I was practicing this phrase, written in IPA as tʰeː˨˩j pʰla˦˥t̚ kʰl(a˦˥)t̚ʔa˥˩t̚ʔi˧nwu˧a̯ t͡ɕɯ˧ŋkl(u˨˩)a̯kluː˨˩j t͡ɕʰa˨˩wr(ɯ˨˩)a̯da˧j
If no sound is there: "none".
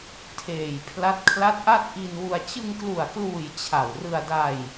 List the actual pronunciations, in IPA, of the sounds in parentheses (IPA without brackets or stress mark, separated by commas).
a˦˥, u˨˩, ɯ˧